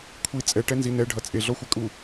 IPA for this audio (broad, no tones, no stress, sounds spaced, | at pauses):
kʷʰ i t͡sʼ ɛ ʈ ɛ n z i n ɛ ɖʱ ʌ t͡sʼ e ɮ ɔ xʷ ɛ kʼ u